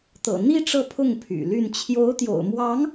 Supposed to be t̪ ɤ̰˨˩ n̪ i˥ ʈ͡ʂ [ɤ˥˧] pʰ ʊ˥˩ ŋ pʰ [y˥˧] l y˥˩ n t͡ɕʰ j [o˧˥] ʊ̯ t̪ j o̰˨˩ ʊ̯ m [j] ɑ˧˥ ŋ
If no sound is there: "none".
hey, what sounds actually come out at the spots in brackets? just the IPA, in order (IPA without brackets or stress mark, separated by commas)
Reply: ɤ˥˧, y̰˨˩, o˧˥, w